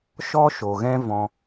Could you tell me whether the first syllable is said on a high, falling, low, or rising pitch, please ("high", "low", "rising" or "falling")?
high